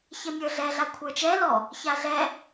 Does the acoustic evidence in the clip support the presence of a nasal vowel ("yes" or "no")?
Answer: no